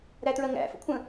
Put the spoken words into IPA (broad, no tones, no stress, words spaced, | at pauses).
ɾætɹɜŋæ̰fə̰ kʷʰə̃